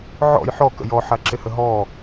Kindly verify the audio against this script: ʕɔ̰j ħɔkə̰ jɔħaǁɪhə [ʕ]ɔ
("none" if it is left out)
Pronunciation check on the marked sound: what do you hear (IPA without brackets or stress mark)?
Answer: ɦ